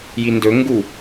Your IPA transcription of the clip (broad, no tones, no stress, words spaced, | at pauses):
jindɵ ŋɡu